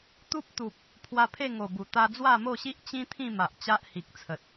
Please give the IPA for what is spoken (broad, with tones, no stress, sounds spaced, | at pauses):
t̪ u˦ p̚ t̪ u˨ p̚ | pʰ w a˧ pʰ e˥˧ ŋ o˨˩ b u˨˩ t̪ a˧ d͡z w a˥˧ m o˥˧ ɕ i˦ ʔ t͡ɕ ĩ˦ t̪ʰ ĩ˥˧ m a˨ ʔ t͡ɕ a˦ ʔ h i˨ k̚ t͡sʰ ə˨ t̚